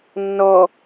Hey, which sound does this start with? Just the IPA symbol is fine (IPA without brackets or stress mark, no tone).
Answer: nː